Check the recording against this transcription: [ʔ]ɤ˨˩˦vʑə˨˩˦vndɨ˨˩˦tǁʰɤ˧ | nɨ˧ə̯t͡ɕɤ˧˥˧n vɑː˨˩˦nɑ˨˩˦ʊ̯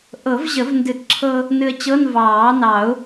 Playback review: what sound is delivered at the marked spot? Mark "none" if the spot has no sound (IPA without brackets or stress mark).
ʔ